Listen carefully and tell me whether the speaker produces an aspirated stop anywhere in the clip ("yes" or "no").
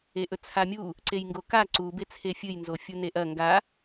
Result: yes